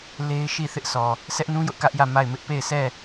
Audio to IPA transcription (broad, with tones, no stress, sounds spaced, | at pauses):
l e˦ ɪ̯ ʃ i˦˨ θ ɪ˦ ʔ sʰ ɔ˨ | sʰ ɛ˦ ʔ n ũ˦ j ʊ˦ ʔ k ä˦ ʔ j ä˦˨ m a˦˨ ɪ̯ m ɪ˦ ʔ p e˦˨ ɪ̯ sʰ ɛ˦˨